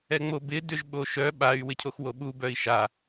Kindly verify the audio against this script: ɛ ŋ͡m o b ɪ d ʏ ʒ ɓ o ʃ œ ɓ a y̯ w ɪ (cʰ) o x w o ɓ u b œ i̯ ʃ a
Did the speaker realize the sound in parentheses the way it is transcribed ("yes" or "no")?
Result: yes